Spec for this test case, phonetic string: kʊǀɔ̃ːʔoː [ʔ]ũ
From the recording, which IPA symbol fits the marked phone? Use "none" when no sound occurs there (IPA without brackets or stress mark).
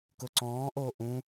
ʔ